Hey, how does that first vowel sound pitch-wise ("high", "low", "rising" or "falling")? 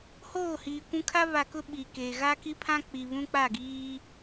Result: falling